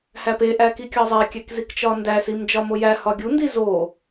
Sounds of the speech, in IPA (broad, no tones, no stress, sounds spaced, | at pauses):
h æ p e ʔ æ k i kʲ ɒ zˤ e kʲ æ k z i k t͡ʃ ɒ n d æ s i m d͡ʒ ɒ m o j æ h ɒ ɡʲ u n d i z o